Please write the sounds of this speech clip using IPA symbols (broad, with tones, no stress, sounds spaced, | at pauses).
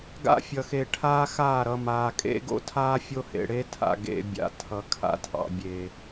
ɡ a̰˦ fʲ ʌ˨ x e˨ ʈʰ aː˦ x aː˦˨ ɾ ʌ˨ m aː˨ kʼ ḛ˦ ɡ o̰˦ tʰ aː˦ fʲ o˦ h ḛ˨ ɽ eː˦ tʰ a̰˨ ɡ ḛ˨ bʲ a̰˨ tʰ ʌ˨ kʰ a̰˦ tʰ ɑ̰˨ bʲ eː˨